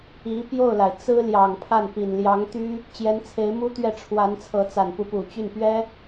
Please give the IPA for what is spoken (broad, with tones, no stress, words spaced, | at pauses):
i˧˥pjo˥˩ʊ̯la˩ɪ̯ t͡sɹ̩˥ljɑ˨˩ŋpʰa˥˩n pi˨˩nljɑ˧˥ŋt̪y˥ | t͡ɕjɛ˧˥nt͡sʰe˧˥ɪ̯mu˥t̪ɥɛ˥˩ ʈ͡ʂʰwa˧˥nt͡sʰɤ˧˥t͡sa˨˩n pu˧˥pu˨˩t͡ɕy˥˩npɥɛ˥